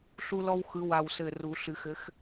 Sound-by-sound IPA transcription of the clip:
ɬu˦lɔ˦wxɯ˨˦ wa˧˩wsɘ˧˩ru˨˩˦ɬɨ˨˩˦x ɘ˨˦x

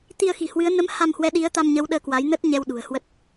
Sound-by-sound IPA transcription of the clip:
t̪i˧ə̯xi̤˨˩hwɨ˨˦ə̯ nə˨˦m ha˧mhwɛ˨˦ ɗi˨˦ə̯t̪a˧mɲə˨˦w ɗəː˧kwa˨˦jnə˦˥t̚ ɲɛ˧wɗṳ˨˩ə̯hwə˦˥t̚

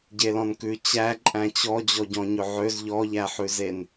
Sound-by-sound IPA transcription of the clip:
ɟelɔ̃nkʉ t͡ɕæ ǃʼæ̃t͡ɕɔ d͡ʑɔɟɔ̃ɲɵʕøz ʎɔʎæħʉzen

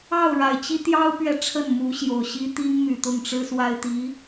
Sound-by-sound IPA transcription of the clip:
ɑ˥˩ʊ̯ɻa˨˩ɪ̯t͡ɕi˥ t̪jɑ˥ʊ̯pɥɛ˨ ʈ͡ʂʰə˥˩nmu˧˥ɕjo˨˩ʊ̯ɕi˥ t̪i˥ŋmy˨˩t̪ʊ˥˩ŋʈ͡ʂɻ̩˥ swa˥ɪ̯t̪i˧˥

